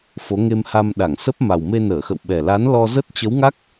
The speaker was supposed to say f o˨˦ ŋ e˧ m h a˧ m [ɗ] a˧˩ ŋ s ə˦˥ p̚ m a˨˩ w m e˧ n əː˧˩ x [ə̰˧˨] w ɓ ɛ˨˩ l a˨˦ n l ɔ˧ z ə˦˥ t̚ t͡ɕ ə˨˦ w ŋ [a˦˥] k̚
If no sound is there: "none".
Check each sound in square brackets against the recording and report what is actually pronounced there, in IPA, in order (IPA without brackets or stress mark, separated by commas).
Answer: ɗ, ə̰˧˨, a˦˥